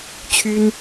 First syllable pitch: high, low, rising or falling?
high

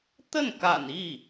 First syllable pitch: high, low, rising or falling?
falling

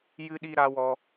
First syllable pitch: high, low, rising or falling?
high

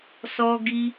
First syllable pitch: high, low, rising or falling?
high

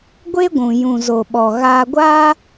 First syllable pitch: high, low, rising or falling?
high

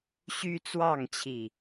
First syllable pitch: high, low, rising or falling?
high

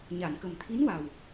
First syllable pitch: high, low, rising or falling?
low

